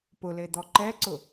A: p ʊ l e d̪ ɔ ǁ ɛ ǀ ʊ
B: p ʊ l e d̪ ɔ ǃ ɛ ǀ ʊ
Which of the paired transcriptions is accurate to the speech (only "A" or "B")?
B